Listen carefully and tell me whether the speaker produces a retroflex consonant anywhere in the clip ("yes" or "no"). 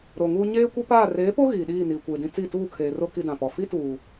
no